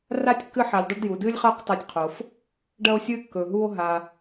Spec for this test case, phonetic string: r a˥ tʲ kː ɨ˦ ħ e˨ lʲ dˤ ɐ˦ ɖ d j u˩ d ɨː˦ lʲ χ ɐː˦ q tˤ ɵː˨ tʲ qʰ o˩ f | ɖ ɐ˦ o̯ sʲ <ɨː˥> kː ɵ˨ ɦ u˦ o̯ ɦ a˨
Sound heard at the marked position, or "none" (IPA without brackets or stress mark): ɨː˦